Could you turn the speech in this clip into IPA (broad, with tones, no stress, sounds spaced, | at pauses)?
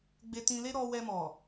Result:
ɡ͡b e˧ t ĩ˧ l e˦ ɾ ɔ˧ w ɛ˧ m ɔ˨